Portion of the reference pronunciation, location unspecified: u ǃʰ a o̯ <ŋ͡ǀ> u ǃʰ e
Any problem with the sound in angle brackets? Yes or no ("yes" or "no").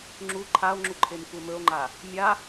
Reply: yes